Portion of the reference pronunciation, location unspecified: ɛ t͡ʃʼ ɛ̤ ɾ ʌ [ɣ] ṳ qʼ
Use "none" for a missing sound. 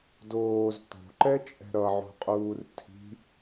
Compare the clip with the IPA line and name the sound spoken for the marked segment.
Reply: ʕ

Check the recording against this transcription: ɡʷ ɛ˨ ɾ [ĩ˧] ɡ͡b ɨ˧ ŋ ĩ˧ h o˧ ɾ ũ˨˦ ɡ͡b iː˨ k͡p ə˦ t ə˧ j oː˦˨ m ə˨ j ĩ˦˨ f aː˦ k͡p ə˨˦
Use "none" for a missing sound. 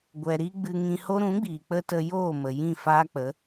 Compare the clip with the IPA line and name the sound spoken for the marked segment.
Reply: i˧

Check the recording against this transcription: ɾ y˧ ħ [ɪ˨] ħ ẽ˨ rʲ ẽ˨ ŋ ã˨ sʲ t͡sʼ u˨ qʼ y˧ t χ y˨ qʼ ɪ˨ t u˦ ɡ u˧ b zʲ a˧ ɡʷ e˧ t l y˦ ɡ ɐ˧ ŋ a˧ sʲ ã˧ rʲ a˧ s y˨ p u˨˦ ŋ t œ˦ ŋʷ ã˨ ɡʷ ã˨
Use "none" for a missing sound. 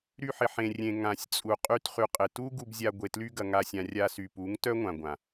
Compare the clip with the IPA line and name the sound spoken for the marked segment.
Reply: ɪ˨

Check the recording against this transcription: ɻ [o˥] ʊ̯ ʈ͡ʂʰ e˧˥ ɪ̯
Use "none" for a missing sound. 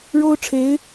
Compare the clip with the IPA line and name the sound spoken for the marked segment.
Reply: o˥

